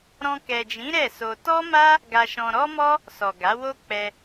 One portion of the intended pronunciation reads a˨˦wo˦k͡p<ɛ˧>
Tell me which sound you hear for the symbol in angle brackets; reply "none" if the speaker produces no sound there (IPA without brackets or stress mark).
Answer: ɛ˧